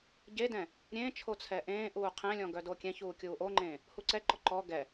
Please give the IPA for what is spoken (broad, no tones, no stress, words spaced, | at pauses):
ɟedɛ̃ | ɾʲẽːt͡ʃʰo t͡sʰɛʔẽːʔuː qʰɛ̃lʲɔ̃ ɡœdokʲɛ̃çuː kʲuːʔoŋ͡ǃẽː | huǀɛǃɔ ǃɔ ɡɛ